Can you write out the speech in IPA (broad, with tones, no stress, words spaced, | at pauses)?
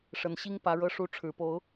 ʂə˨˩nɕi˦ŋpä˨˦ ɻɤ˨˦ʂu˨˦ʈ͡ʂʰɻ̩˨˩po˨˦ʊ̯